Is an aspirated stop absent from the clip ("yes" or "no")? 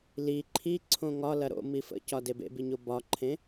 no